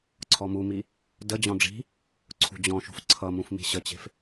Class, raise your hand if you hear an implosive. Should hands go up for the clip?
no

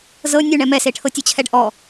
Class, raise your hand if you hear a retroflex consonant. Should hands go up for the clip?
yes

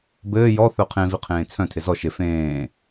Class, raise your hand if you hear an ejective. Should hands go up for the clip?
no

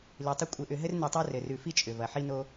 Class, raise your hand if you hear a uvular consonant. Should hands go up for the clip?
no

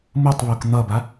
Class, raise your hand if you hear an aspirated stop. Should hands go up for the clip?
no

